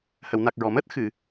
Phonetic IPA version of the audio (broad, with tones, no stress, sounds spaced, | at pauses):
h ə˨˩˨ w n a˨˩ k̚ ɹ ɔ˨˩˨ m əː˦˥ t̚ x ɨ˨˩˨